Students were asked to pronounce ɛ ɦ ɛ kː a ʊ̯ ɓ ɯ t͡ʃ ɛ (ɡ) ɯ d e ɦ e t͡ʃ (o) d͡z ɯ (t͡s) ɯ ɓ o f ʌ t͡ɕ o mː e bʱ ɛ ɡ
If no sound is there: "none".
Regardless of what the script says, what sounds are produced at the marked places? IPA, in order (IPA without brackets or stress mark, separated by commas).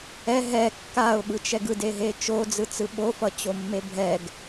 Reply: ɡ, o, t͡s